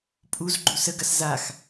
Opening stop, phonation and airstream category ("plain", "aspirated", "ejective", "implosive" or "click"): ejective